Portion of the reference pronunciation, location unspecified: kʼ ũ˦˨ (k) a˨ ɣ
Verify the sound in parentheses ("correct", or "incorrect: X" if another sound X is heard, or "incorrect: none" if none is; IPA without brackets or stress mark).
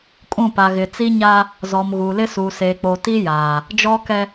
incorrect: p